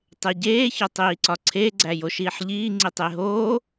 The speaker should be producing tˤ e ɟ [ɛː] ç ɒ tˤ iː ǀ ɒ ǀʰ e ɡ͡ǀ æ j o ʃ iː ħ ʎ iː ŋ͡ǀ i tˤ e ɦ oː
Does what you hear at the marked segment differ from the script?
yes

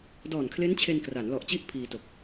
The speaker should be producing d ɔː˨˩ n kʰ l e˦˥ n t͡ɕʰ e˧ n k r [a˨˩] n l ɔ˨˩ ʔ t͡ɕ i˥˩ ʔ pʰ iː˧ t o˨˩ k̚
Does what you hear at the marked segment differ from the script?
yes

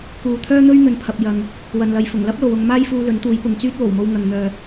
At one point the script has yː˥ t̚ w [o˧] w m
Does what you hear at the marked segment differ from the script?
yes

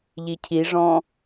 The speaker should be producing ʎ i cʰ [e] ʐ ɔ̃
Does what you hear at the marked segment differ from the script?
yes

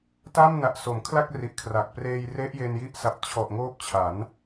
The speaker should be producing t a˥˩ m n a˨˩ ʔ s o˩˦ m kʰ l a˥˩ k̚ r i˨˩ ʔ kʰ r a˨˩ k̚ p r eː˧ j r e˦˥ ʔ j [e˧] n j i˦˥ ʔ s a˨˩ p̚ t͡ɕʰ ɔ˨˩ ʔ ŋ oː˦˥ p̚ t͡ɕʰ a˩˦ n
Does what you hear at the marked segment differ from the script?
no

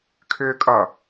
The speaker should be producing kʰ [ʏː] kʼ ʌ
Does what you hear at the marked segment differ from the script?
no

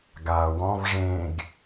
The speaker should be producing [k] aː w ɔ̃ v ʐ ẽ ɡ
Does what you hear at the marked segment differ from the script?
yes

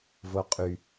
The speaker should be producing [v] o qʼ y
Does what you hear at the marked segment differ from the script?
no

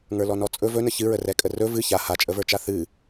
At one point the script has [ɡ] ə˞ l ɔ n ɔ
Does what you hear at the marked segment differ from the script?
yes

